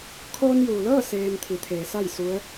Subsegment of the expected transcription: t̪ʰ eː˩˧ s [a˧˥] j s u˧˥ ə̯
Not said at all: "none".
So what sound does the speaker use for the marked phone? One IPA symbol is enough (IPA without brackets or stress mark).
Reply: a˥˨